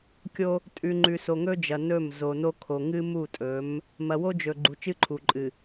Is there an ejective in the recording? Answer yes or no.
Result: yes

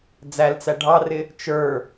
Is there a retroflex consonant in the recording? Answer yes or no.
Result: yes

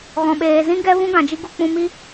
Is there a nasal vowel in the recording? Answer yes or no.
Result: yes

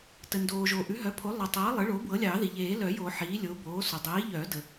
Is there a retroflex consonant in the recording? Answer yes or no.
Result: yes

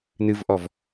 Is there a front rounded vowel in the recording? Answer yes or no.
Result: no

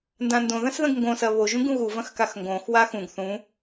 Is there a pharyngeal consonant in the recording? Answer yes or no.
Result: no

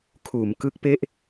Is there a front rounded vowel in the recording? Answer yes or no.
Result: no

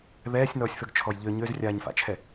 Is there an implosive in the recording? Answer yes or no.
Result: no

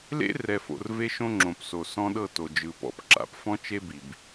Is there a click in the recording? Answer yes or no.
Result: yes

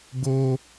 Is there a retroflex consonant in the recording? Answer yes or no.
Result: no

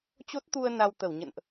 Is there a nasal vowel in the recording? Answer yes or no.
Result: no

